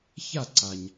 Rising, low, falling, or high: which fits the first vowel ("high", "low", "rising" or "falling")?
falling